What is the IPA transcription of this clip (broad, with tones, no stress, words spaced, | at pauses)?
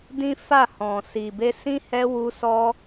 dĩ˦fa˦˨hɔ̃˨ si˨be˧sĩ˦ hɛ˦ wu˧ sɔ˦